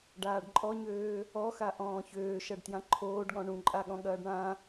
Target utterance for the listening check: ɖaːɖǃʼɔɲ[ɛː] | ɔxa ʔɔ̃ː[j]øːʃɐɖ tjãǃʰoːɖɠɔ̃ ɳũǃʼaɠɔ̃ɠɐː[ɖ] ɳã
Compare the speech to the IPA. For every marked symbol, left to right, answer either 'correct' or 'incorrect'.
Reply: incorrect: øː, incorrect: ç, correct

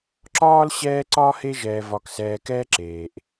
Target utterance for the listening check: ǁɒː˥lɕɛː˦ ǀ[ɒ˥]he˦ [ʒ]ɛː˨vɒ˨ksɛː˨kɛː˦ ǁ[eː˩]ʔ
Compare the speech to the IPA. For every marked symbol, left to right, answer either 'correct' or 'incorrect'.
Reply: correct, correct, correct

